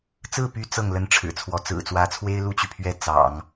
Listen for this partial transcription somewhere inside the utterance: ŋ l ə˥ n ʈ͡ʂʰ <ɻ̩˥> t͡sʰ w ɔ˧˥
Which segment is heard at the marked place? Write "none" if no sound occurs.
ɻ̩˨˩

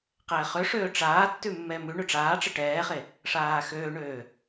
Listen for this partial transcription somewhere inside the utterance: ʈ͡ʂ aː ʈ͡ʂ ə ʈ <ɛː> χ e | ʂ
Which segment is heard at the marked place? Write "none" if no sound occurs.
ɛː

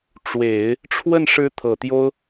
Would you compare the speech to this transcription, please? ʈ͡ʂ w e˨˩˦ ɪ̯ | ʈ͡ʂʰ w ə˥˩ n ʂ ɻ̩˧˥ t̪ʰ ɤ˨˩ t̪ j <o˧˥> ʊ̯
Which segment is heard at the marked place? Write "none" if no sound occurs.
o˥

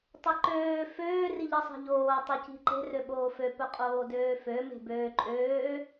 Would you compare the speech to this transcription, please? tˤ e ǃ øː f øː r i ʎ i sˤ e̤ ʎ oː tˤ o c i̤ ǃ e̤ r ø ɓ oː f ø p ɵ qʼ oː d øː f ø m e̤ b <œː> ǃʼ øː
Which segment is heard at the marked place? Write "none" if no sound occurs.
øː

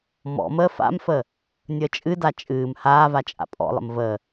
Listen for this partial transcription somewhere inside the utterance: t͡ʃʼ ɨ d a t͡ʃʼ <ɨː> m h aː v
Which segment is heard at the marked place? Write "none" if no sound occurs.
ɨː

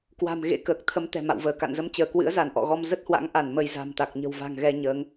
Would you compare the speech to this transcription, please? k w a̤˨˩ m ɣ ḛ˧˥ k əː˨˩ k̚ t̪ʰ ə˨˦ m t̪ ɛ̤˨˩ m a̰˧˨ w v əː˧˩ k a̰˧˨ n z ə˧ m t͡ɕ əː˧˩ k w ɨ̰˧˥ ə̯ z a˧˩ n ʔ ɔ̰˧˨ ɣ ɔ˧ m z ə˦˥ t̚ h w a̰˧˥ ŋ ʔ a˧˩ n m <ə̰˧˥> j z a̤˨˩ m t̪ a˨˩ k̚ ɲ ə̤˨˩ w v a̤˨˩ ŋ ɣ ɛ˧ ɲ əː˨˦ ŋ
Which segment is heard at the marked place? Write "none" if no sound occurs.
ə˧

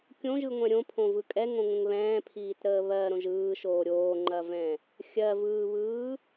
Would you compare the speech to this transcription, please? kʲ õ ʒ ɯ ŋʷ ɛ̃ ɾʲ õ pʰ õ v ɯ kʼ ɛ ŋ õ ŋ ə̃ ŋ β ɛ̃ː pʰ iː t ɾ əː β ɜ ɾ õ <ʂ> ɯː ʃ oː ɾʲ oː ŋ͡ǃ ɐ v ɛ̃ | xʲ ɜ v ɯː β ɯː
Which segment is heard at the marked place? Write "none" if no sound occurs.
ʒ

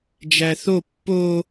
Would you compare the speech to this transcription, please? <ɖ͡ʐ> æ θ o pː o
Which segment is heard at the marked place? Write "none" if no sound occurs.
d͡ʒ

